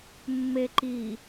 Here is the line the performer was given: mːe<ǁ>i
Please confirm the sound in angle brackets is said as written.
no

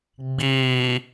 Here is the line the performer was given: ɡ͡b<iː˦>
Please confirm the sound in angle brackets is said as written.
no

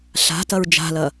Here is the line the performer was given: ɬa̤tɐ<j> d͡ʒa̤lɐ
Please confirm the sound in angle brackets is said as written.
no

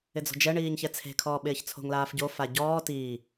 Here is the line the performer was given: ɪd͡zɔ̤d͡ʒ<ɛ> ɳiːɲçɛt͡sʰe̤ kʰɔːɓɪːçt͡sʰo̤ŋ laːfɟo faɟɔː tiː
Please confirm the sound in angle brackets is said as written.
yes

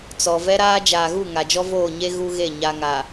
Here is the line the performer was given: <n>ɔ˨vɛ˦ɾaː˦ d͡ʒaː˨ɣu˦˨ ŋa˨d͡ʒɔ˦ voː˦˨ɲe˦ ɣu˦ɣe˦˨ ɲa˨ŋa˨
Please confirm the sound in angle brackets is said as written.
no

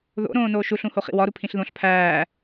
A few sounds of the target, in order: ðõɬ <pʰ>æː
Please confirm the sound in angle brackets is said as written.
yes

